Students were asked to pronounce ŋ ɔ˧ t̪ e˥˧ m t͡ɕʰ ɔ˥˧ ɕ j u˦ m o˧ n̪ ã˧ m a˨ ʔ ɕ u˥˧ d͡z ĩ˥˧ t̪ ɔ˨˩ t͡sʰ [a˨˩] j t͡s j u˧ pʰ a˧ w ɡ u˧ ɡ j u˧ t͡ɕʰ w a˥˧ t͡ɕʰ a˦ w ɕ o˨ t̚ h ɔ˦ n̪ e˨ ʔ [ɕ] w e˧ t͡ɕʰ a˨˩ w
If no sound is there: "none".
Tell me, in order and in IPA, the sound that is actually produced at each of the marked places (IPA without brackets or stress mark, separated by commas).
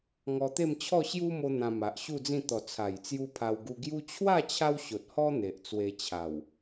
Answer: a˨˩, t͡s